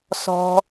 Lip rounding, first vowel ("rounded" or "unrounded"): rounded